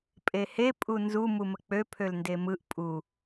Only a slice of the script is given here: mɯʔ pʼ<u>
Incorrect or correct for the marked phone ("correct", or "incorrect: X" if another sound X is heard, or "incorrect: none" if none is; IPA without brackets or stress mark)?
correct